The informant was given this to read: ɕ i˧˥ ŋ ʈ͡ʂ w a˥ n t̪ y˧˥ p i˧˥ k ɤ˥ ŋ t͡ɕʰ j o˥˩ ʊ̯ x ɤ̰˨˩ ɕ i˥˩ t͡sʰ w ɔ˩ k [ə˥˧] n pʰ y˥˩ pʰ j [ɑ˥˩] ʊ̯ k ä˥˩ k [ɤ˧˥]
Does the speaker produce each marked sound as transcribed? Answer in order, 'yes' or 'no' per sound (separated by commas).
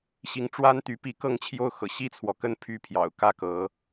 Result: yes, no, yes